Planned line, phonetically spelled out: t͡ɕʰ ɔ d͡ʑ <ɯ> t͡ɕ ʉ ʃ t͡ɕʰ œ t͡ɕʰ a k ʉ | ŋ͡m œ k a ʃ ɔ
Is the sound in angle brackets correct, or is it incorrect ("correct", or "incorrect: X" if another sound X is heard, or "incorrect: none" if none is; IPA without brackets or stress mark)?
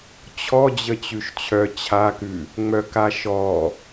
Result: incorrect: ə